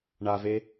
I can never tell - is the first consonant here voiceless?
no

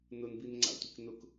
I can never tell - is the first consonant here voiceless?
no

